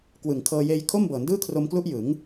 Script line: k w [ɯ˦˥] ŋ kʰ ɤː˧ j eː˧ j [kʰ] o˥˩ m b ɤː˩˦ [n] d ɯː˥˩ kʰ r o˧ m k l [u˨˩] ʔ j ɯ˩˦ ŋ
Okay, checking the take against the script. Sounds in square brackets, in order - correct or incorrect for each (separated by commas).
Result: incorrect, correct, correct, incorrect